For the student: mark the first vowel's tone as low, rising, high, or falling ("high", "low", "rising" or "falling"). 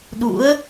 rising